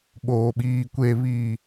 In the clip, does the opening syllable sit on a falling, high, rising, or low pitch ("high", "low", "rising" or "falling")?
low